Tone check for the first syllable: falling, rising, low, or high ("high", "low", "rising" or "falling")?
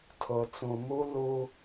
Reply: low